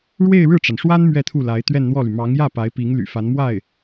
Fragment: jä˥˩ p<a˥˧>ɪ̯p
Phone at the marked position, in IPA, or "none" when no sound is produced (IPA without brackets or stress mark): a˧˥